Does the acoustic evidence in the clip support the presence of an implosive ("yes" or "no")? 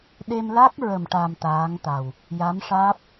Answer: yes